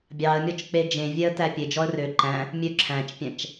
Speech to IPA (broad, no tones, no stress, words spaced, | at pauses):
bʲɑə̯mʲɔt͡ʃ k͡ped͡ʒẽvʲɛə̯tæ pʲed͡ʒɔə̯ rø ǃæ̃ | mʲø ǁʰæ̃t͡ʃpʲæ̃t͡ʃ